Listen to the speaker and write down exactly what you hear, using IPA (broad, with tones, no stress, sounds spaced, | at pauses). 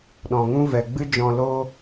ɗ ɔ̃˨ ŋ ũ˦ v ɛ˨ ɡ͡b ɨ˦ d͡ʒ ɔ̃˧ l oː˦